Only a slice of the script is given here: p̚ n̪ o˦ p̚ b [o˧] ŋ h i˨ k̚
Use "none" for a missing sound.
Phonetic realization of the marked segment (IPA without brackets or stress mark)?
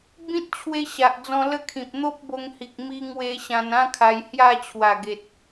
o˧